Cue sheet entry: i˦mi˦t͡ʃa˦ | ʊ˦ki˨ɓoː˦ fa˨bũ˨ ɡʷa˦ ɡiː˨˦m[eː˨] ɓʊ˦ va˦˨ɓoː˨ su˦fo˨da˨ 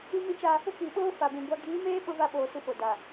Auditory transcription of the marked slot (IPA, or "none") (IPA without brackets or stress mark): eː˦